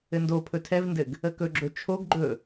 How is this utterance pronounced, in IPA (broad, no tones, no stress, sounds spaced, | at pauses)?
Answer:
ɘ n d o pʰ ɵ tʰ ɛ v n d ɘ ɡ | ə k ɵ ɡ͡ǁ ɵ t͡ʃʰ o ɡ ɡ͡ǃ ɵ